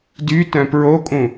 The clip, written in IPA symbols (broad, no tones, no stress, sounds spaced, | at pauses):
d y t œ̃ p ɹ o kʼ ũ